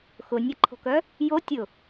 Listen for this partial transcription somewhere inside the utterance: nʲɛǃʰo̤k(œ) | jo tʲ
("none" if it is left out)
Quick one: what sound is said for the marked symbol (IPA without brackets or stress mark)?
œ